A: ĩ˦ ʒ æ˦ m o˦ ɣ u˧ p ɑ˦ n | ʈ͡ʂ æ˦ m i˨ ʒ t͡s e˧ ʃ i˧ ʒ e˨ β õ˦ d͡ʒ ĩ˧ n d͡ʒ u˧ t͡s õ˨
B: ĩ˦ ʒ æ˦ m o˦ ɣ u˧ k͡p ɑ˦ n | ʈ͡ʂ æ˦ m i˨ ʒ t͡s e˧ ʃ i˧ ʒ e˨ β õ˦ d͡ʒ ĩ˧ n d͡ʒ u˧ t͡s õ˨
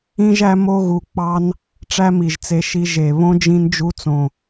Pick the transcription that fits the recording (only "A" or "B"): B